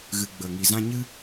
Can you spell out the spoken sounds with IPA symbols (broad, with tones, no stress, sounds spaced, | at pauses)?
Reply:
ɣ ɨ˧ ɡ͡b ə˨ ŋ i˨ z ã˧ ɲ ɨ˦